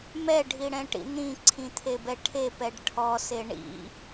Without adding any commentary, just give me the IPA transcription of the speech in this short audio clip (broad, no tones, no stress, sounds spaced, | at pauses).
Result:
m ɛ ɖʱ i ɽ ɛ̃ ʈ ḭ n̪ ĩ ǀʰ ĩ t̪ʰ e b ɛ ʈʰ e p ɛ ɖ ʈʰ ɔ s e ɳ ḭ